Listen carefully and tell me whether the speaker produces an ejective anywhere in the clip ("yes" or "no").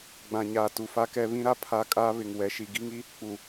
yes